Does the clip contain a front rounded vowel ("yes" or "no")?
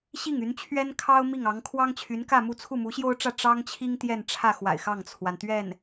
yes